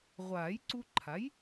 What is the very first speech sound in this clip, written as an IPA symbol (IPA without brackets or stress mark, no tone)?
ʁʷ